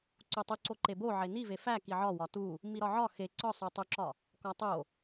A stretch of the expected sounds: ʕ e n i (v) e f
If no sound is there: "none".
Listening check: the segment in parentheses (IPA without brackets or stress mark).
v